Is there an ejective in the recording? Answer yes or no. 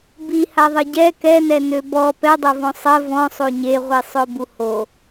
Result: no